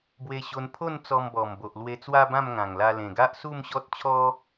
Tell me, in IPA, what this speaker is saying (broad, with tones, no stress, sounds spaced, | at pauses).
b w e˧ ɕ o˧ n pʰ o˥˧ n t͡s ɔ˧ m b ɔ˨˩ m b o˨ ʔ l w e˧ t͡s w a˦ b ã˥˧ m ŋ ã˨˩ ŋ l a˧ l ẽ˨˩ ɡ a˦ ʔ s u˥˧ m ɕ ɔ˦ t̚ t͡ɕʰ ɔ˦